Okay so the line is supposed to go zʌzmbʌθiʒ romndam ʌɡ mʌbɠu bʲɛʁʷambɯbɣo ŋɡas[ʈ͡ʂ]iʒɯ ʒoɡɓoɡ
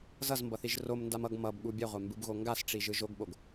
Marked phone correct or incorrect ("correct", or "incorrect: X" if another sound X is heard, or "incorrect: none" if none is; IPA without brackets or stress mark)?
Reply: correct